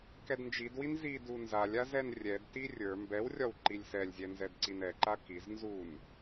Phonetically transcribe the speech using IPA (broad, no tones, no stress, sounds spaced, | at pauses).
k ɛ d n d͡ʒ i d w i n z i d u n z a lʲ a z ɛ n rʲ ɛ d t i rʲ ə˞ m b ɛ w rʲ ɒ w ǃ i lʲ s ɛ lʲ zʲ ɛ n z ɛ d ǀ i n ɛ ǃ a k i z n z u n